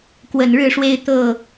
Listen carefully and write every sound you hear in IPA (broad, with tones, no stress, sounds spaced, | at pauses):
k w ə˨˩ n ɻ ɻ̩˥˨ ʂ w e˦ ɪ̯ t̪ ɤ˥˨